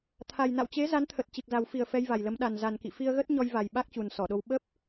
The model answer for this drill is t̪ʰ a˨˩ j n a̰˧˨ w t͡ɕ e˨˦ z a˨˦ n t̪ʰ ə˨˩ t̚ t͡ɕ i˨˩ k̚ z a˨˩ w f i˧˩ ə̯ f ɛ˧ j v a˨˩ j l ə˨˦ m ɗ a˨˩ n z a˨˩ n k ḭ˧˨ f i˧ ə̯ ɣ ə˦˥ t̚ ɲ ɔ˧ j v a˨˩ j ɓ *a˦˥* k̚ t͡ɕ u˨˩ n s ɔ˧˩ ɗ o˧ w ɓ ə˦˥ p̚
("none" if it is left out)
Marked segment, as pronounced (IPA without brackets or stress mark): a˦˥